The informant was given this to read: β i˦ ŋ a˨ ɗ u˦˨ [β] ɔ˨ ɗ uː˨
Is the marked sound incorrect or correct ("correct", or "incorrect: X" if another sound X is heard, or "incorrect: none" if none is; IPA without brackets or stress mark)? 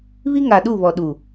correct